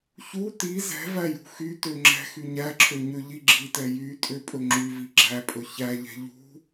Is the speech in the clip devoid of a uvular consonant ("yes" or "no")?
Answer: yes